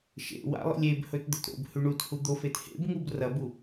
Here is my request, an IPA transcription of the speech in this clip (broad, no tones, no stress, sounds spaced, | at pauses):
ʃ ḛ w a̰ lˠ ḭ lʲ e b h ɵ t d̪ ɵ t ɾ o̰ b h ʉ ɳ u t h u d̪ o f e t h ḛ b ŋ u b r ɐ b u